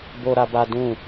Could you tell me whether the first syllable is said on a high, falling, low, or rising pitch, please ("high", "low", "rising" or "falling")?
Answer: high